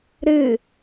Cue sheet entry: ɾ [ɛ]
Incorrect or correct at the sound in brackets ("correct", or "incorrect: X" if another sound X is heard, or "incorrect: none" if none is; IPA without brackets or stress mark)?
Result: incorrect: ɨ